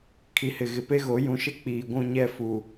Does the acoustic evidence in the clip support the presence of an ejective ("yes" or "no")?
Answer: no